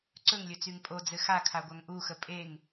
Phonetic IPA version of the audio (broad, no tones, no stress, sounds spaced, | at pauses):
ǀ ɵ ŋ lʲ ɵ t͡s y ŋ pʼ o d͡z ɘ x a kʰ a ɡʷ a ŋ ʔ u x ə pʼ e ŋ